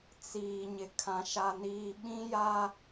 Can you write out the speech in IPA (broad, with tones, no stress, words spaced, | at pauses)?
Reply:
t͡siː˨ ɲɪ˨kʰã˨ ʃa˨niː˨ ɓĩ˦ja˦